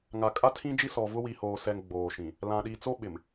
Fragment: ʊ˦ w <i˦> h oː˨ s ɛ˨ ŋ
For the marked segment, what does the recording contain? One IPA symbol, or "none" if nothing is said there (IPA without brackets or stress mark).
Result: i˨